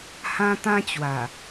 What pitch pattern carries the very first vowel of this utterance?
high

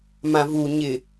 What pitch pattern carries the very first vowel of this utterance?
low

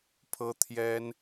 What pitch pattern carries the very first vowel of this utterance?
high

